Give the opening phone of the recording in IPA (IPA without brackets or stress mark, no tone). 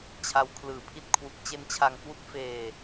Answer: t͡ɕʰ